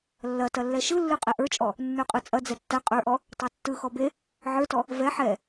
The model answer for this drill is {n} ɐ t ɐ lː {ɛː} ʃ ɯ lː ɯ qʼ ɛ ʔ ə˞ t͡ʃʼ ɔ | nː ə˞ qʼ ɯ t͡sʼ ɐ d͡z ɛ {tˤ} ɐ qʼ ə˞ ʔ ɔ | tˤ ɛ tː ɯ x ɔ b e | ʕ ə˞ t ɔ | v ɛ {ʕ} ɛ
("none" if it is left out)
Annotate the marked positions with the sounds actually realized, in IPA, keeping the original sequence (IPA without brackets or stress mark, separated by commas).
lː, ɛ, tː, ħ